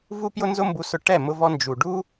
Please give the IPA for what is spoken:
vu˦pjʊ˦nzʊ˦mbu˧ sʊ˧ʈɛ˦˨ mʊ˧vɔ˧ nd͡ʒu˨ɖu˦

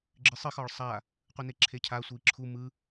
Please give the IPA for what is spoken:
ɡ͡ǁɨsˤɨx ɒɭsˤa | qʷɯneǁʰecʰa sʷɨi̯ǁʰu mɯ

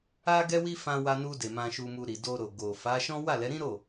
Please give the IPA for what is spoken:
a˦ɡɛ˦wi˦ fã˧wa˧nu˧de˨ mã˧ʃu˧mu˧ ɾi˨do˧ɾo˨ ɡo˨ fa˨˦ʃɔ̃˦ wa˦˨lɛ˨˦ɾĩ˦ɾo˦˨

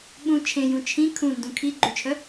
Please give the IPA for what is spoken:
ɓũ t͡ʃʰẽjũ t͡ʃʰĩ kʰũndũ kʰi ɡ͡ǃyt͡ʃʰœ

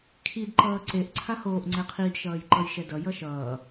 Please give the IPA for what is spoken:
kʰid ǃʌːǀeʔ ǀʰahoːʔ ŋ͡ǀɛqʰid ʃʌːjǃʌjʃɛdʌ jʌʃʌː

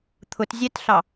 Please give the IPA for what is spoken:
t̪ʰʊtzʲætɬɑ

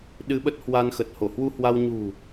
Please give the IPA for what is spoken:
ɗɨ˧ɓə˦˥t̚hwa˧nxə˨˩t̚ ho˧˩hwu˧hwa˧w ɲṳ˨˩

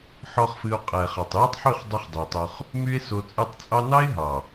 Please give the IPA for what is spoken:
ħɔ˦χfɨ˧o̯ qʼɛ˨χɑ˨tˤ jɨ˦tˤħy˦˨χdˤy˧χ dˤi˨tˤo˧χ | my˦e̯so˧t͡sʼɨ˦˨tˤ t͡sʼɑ˦ nɑ˦e̯ ɦɑ˨

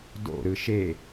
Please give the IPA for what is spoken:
do̰ ɾɯʃe

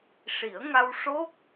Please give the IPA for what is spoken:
ʂi˨˩˦ə̯ŋa˧w ʂo˦˥k̚

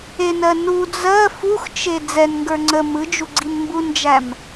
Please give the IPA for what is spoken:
enɜ nu d͡zɜ fuxt͡ʃe d͡zɛnŋɡə˞ ŋ͡ǀə mɯd͡ʒu ɡ͡ǀinmbund͡ʒæm

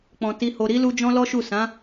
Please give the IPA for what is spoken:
k͡pɔ̃˨ ti˨ho˨ ɾi˨˦lu˧ d͡ʒɔ̃˦lɔ˦ʃu˦˨ sã˨˦

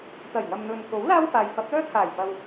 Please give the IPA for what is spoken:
t̪ɐ˨˩jŋɐ˨mn̪ɵ˨nko˨˥w laː˥wfaː˨j fɐ˨˥p̚lœː˥t̪ʰaː˨˩jpɐ˨w

